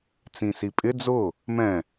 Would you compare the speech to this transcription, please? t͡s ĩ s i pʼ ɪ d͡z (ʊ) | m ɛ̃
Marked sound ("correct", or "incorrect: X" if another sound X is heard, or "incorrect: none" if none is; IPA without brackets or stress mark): correct